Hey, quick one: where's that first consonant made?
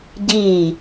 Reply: palate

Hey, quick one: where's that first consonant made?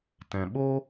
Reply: tongue tip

